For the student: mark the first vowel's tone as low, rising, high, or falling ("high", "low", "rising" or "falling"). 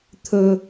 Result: low